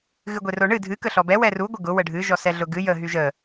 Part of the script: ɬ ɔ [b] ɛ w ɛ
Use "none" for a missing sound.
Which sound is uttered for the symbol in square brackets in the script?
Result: b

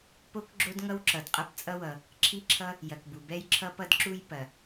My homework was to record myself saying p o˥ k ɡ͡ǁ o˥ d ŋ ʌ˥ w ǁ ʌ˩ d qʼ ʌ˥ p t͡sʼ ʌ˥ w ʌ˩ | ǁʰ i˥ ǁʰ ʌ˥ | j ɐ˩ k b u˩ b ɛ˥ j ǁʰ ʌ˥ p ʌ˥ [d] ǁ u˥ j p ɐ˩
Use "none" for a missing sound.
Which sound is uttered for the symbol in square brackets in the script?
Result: d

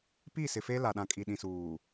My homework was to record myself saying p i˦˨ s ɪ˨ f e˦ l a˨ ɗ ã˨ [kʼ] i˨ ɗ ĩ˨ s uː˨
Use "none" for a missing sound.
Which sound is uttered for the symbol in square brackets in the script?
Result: kʼ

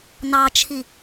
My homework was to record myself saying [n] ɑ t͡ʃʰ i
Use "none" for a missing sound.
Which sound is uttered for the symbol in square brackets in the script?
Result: n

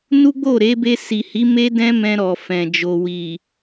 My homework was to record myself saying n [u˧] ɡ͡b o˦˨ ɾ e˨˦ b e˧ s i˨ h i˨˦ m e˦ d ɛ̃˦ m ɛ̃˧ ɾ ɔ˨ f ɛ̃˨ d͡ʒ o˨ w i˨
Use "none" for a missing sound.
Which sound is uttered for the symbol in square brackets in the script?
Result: u˦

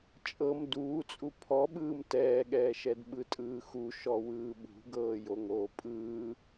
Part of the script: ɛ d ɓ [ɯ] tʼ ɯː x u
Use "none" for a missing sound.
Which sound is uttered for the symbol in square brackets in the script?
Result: ɯ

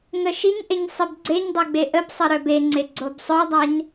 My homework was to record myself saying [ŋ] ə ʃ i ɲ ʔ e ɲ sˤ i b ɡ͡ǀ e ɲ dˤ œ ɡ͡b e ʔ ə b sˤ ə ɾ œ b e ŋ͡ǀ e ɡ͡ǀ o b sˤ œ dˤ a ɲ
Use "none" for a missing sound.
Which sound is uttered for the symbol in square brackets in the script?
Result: ŋ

